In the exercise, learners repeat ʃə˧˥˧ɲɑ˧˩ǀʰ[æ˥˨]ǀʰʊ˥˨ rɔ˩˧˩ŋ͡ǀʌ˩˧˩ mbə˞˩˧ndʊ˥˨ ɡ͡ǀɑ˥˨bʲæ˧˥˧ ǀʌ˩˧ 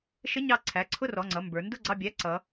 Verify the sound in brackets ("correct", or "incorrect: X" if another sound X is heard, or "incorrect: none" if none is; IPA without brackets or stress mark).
incorrect: æ˩˧˩